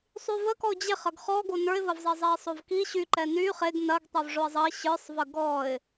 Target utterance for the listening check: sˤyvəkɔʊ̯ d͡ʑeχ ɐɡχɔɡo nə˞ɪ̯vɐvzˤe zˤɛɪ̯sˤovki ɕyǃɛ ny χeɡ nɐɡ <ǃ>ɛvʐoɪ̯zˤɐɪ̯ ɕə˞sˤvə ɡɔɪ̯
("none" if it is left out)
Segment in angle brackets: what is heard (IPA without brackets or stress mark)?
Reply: tˤ